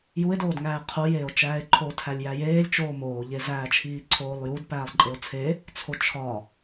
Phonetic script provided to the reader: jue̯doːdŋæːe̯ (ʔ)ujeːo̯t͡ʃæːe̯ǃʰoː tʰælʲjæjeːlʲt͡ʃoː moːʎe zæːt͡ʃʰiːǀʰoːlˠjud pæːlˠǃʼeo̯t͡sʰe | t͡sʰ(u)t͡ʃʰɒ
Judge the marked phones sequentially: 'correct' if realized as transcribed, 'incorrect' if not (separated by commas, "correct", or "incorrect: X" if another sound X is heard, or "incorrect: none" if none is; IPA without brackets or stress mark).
incorrect: qʰ, incorrect: o